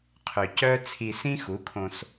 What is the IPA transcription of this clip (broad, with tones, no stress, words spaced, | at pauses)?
qʰø˨cœ˦ t͡sʰi˧sĩ˦xu˨˦kʰõ˧s